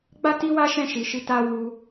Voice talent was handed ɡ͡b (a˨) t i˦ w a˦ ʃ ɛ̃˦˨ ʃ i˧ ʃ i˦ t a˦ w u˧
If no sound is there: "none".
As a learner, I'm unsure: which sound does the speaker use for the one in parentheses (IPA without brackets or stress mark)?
a˦